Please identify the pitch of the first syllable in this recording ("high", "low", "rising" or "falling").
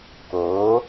rising